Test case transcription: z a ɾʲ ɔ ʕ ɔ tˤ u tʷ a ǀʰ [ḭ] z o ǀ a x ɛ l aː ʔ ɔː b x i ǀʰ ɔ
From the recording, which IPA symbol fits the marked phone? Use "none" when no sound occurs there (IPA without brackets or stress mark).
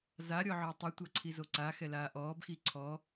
i